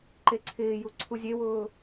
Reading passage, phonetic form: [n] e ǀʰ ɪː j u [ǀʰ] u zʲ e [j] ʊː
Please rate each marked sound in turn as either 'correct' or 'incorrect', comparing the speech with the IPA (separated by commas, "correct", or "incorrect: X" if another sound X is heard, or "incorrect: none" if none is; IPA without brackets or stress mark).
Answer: incorrect: ǃ, correct, incorrect: w